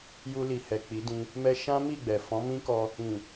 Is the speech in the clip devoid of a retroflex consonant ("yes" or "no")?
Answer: yes